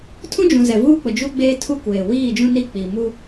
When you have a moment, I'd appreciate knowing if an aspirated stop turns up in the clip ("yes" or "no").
yes